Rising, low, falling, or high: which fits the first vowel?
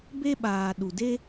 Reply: high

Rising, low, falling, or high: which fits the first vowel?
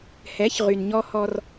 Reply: rising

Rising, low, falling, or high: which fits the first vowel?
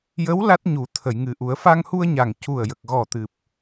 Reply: rising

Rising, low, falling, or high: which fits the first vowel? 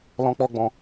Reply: high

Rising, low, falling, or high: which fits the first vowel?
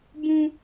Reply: high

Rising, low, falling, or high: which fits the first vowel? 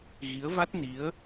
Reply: rising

